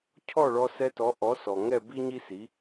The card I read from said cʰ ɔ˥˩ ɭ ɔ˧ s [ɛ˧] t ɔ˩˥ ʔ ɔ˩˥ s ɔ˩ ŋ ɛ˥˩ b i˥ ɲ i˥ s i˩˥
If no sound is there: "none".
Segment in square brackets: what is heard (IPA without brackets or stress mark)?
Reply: ɛ˧